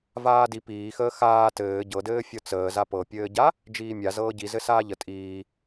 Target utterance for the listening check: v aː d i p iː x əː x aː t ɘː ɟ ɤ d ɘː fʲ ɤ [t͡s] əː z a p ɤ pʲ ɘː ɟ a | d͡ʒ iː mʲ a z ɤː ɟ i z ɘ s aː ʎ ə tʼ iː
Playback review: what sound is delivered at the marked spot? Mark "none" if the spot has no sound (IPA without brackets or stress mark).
t͡s